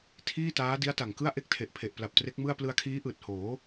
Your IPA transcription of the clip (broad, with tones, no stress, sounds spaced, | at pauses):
tʰ iː˥˩ t aː˦˥ d i˦˥ a̯ t a˨˩ ŋ k ɯ˥˩ a̯ ʔ e˥˩ k̚ tʰ e˨˩ ʔ pʰ e˨˩ ʔ p l a˨˩ p̚ t r e˦˥ k̚ m ɯ˥˩ a̯ p l ɯ˧ a̯ kʰ iː˦˥ ʔ ɯː˨˩ t̚ h oː˩˦